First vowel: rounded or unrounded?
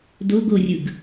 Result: rounded